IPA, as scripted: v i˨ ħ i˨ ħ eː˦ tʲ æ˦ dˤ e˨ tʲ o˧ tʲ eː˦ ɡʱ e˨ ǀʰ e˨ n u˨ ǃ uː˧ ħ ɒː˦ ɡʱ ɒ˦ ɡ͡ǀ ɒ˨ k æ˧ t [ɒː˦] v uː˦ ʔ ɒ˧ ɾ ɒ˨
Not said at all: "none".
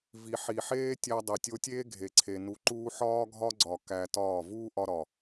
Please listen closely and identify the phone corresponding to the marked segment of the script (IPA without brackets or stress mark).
ɒː˦˨